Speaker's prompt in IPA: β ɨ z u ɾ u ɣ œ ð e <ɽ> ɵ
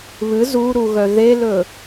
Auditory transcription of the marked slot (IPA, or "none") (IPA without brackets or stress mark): l